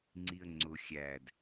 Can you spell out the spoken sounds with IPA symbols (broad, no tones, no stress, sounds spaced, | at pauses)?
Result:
ŋ͡ǀ i ə̯ ŋ͡ǀ ʊ xʲ æ d